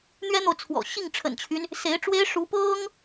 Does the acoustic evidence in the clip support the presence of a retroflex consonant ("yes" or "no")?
yes